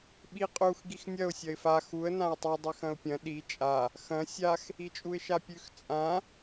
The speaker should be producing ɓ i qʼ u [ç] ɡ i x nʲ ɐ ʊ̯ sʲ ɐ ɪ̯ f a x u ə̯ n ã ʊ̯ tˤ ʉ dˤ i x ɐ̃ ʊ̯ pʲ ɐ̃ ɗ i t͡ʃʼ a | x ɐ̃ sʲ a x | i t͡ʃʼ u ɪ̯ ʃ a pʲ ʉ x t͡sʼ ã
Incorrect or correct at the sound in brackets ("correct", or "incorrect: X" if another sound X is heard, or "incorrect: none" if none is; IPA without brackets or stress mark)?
incorrect: x